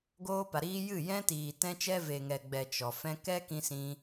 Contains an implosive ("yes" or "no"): no